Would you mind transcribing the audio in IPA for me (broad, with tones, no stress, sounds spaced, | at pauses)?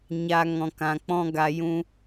ɲ a˧ ŋ ɔ̃˧ k ã˧ k͡p ɔ̃˦ ɡ a˧ j ũ˧